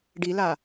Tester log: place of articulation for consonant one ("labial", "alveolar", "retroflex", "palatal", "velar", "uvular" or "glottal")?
retroflex